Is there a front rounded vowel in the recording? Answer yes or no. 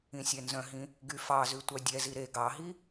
yes